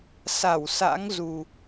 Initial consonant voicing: voiceless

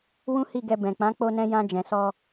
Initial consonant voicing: voiced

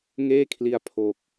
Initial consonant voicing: voiced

